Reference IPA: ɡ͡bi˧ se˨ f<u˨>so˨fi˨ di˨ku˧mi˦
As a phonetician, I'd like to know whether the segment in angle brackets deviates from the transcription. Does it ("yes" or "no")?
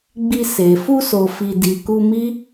yes